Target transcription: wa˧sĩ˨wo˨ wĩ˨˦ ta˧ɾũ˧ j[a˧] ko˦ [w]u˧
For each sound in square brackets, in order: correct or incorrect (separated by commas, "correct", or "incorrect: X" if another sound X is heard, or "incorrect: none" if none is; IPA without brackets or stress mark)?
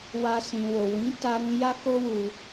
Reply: incorrect: a˦, correct